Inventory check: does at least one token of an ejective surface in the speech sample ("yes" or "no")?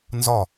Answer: no